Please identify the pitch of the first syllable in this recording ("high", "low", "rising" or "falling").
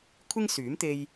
high